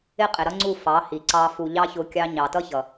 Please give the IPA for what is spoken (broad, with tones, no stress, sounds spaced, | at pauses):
ɪ˦ qʼ ɪ˨ ɾ ʌ˦ ŋ͡ǀ u˦˨ f ɑ˨˦ h i˨ ǀ ɑ˧ f u˨ ʎ ɑ˦ ç ʊ˧ kʲ ɑ˧ ɲ ɑ˨ t ʌ˦ ç ʌ˨